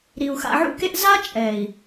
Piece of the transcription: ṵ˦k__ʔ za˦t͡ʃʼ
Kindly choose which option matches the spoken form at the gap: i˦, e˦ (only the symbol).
e˦